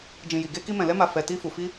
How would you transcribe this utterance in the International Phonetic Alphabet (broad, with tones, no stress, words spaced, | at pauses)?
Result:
d͡ʒĩ˨ji˨ ɡe˧ki˧ mɛ̃˨lɛ˧ma˨ fɛ˨ ti˧fu˨ fi˧